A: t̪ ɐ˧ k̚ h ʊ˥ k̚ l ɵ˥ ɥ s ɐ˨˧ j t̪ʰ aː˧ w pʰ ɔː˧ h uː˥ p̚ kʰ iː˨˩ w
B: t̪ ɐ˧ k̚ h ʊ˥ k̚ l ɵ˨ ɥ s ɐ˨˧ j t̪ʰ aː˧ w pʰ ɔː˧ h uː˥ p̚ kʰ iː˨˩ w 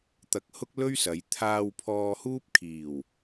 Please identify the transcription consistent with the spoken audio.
A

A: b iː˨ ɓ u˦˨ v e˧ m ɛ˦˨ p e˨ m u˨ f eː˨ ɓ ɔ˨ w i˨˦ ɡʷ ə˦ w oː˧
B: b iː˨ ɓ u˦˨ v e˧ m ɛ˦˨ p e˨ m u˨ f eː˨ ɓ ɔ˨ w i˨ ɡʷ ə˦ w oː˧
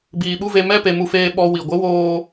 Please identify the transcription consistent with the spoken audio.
B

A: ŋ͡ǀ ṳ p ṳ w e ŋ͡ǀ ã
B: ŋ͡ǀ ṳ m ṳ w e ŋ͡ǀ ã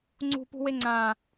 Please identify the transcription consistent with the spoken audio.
A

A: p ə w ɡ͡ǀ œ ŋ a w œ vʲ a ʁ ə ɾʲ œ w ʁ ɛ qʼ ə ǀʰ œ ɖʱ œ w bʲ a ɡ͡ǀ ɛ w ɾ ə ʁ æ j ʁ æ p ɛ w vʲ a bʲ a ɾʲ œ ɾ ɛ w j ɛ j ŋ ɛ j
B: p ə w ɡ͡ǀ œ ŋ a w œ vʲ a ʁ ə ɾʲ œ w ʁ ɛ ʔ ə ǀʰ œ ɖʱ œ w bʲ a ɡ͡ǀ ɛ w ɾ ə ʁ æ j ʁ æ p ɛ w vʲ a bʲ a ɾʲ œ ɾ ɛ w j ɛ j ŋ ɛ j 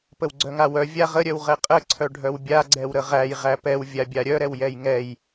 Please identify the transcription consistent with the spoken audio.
A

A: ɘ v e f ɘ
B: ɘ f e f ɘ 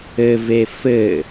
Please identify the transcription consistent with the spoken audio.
A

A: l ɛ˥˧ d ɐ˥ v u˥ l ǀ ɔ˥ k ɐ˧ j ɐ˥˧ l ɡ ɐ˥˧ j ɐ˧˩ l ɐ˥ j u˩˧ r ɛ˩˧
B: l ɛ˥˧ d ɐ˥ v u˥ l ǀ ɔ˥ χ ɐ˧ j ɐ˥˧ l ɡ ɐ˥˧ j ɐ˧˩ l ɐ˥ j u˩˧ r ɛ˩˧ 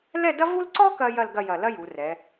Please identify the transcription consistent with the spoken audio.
A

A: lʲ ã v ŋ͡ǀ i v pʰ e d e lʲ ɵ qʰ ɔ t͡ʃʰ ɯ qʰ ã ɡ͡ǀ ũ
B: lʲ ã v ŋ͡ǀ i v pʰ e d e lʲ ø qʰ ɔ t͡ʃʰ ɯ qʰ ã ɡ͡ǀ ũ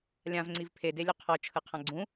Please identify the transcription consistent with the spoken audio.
A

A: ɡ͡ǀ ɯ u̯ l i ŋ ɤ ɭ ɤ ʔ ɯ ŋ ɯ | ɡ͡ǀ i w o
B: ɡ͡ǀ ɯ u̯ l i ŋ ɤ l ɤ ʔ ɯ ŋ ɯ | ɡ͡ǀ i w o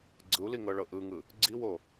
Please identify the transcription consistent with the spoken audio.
A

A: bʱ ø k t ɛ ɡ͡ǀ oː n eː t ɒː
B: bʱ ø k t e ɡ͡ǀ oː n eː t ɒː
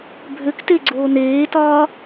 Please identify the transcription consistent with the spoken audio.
B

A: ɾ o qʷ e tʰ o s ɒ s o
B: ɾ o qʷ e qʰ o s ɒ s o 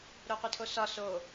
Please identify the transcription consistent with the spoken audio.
A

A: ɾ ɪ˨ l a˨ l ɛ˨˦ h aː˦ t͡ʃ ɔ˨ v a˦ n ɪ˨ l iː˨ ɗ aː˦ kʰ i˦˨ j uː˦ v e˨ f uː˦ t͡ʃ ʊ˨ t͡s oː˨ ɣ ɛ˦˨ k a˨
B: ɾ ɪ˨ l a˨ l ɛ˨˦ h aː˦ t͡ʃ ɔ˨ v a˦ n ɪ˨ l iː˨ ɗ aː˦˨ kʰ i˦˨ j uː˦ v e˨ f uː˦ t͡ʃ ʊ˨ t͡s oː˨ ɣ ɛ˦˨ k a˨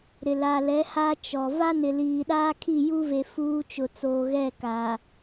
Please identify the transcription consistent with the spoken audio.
A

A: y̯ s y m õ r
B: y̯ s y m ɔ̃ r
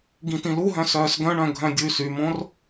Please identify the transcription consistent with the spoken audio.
A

